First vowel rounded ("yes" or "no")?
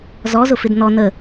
yes